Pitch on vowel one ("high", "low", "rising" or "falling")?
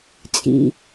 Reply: low